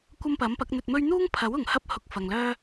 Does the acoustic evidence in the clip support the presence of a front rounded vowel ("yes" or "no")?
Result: yes